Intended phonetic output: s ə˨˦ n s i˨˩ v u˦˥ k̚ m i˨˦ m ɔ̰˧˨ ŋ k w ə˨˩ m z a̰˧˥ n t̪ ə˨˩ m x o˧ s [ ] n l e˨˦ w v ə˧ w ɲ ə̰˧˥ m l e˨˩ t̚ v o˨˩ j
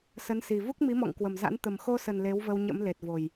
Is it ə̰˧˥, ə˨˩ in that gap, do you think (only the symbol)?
ə˨˩